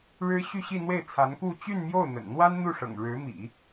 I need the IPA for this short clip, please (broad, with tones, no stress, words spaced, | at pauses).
ɻɻ̩˥ ɕy˥˧ɕi˥˧n̪we˥˩ɪ̯t͡sʰa˧˥n ku˥˧ t͡ɕy˥˧nmjo˥˩ʊ̯n̪ə̰˨˩nn̪wa˥n n̪u˥˩ʂɤ̰˨˩ŋ ɻɻ̩˧˥mḭ˨˩˦